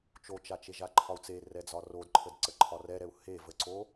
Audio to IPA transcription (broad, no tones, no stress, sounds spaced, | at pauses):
t͡ʃ o t͡ʃ a t͡ʃ e ʒ a ǃʰ ɒ u̯ t͡s e r ɛ d͡z ɒ r o d ǃʰ ə d ǀ ə ǃʰ ɒ r ɛ ɾ ɛ u̯ h e v ə ǀ o